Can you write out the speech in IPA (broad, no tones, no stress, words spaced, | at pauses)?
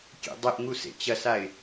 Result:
kʲḛdˤeʔŋu sḛt͡ɕɐsaɪ̯